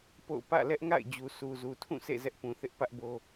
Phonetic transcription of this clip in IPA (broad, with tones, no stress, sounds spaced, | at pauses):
p o̰˦˨ ʊ̯ p ä̰˦˨ l ɛ˦ ʔ ŋ a̰˦˨ ɪ̯ d͡ʑ u˨ s u˨ z u˨ tʰ ũ˦˨ sʰ ḛ˦˨ z ɛ˦ ʔ p ũ˨ θ ɪ˦ ʔ p ä˦ ʔ b o˦